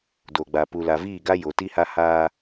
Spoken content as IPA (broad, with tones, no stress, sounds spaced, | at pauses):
d o˨ ɡ͡b a˨ p u˨ l a˨ v iː˦˨ ɡ a˦ j o˨ t i˦ h a˦ h aː˦